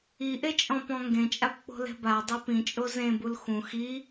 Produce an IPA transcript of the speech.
i ʔ e t͡ʃʼ ɔ̃ p ɔ̃ ŋ ɡ ẽ t͡ʃʼ a p k͡p o̤ l ɛ̤ b a dˤ e p ĩ t͡ʃʼ o z ẽ b u l x ũ x i

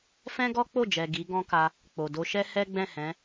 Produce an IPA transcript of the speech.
f ɛ̃˦ ɡ ɔ˦ k͡p o˦˨ d͡ʒ ɛ˨ ɡ i˨˦ ɡ ɔ̃˦ k a˧ | k͡p o˨ d o˧ ʃ ɛ˦ h ɛ˦ ɡ͡b ɛ̃˦˨ h ɛ̃˨˦

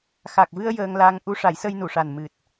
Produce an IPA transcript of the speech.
x a˨˩ k̚ v ɨ˧ ə̯ j əː˧ ŋ l a˧ ŋ ʔ u˧˥ ʂ a˨˩˦ j s ə˧ j n u˨˩˨ ʂ a˨˩ n m ɨ˨˩ t̚

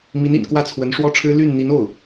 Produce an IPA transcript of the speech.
m i˧˥ n ḭ˨˩ n k w ä˥˩ t͡sʰ w ə˧˥ n ʂ w ɔ˥ ʈ͡ʂʰ ɻ̩˥ l y˥˩ n n̪ i˧˥ n o˥˩ ʊ̯

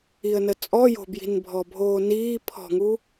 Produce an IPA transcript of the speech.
i ə̯ n ə t͡sʼ ɔ j o̤ b j i̤ n bʱ ɔ bʱ oː n iː pʰ ɔ̤ ŋ u

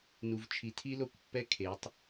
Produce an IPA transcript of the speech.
n u˨ v t͡ʃʰ i˨˦ tʰ i˦ l o˦˨ kʷ pː ɛ˦ kʰ e˨˦ tˤ

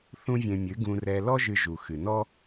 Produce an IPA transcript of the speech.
θ ũ˦ vʲ ẽ˧ mʲ ɨ˨˦ ɡ ũ˧ r ɛ˧ l ɔ˦ ʒ ɨ˧ ʒ u˨ x ɨ˨ n ɔ˦

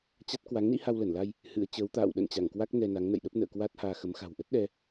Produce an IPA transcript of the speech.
t͡ɕ a˦˥ t̚ k w a˨˦ ŋ n ḭ˧˥ h a˧ w l ə˧˩ n l a˧ j | h ɨ̰˧˥ ə̯ t͡ɕ əː˨˦ w t̪ a̰ː˧˨ w ɗ ə̰˧˨ n t͡ɕ a˧˩ ŋ k w a˦˥ k̚ n ɛ˧ n a˨˦ ŋ n ə̰˧˨ j ɗ ə˦˥ p̚ n ə̰ː˧˨ k w a˦˥ t̚ h aː˧ x ə˨˦ m x a̤˨˩ w ʔ ə˦˥ t̚ ɗ ɛ˧

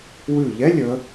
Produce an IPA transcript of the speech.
w ʉ˧˩ ʎ ɛ˧˥˧ lʲ ə˩˧

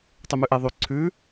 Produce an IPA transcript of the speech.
tˤ y m ʉ ʔ e ðˤ y ǀʰ ʉ

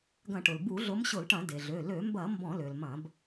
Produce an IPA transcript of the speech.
ɡ ɐ̃˧˩˧ ʈ ʊ˩ l b u˧˩˧ ɮ ʊ˨˦ m ɕ ʊ˧˩˧ l ʈ ɐ̃˧˩˧ d e˩ ɮ ø˩˧˩ l ø˧˩˧ m b ɐ˧˩˧ m b ɔ̃˧˩˧ l ø˩ l m ɐ̃˧˩˧ b

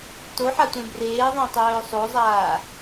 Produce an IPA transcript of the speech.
t o ħ a tʷ ẽ b r eː ðˤ ẽ tˤ œː sˤ o zˤ aː

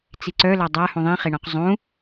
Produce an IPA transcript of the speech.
t͡s i ǀ œ l a dˤ a h ũ ðˤ ĩ χ e ɳ ɔ̃ q zˤ ũ

